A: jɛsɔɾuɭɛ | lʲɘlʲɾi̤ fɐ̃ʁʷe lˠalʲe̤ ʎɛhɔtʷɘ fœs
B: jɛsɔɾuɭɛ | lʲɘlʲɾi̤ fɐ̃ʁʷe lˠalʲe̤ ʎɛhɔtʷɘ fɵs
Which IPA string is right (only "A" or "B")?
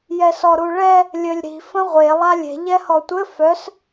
A